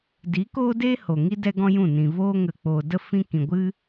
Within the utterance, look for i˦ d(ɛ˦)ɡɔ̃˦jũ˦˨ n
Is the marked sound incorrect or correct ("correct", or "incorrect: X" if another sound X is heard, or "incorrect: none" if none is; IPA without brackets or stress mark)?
correct